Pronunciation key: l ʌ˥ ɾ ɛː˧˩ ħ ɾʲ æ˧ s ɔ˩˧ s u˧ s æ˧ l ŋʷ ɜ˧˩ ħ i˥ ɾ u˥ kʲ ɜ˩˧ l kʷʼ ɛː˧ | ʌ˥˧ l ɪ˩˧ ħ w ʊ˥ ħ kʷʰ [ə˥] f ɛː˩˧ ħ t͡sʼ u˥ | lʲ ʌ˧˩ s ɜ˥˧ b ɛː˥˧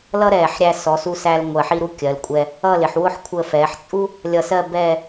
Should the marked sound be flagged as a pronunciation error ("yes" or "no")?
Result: yes